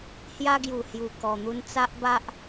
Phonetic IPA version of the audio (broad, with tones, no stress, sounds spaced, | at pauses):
h j a˧ ɡ j u˨˩ h j u˨˩ k ɔ˨˩ n̪ u˧ n t͡s a˦ ʔ b a˦ ʔ